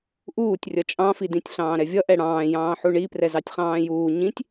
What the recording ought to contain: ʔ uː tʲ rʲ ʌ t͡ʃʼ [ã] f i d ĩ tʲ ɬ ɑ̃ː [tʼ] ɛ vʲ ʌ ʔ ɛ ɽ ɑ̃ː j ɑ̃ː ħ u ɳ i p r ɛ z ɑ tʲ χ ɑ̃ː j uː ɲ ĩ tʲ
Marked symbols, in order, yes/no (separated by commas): no, no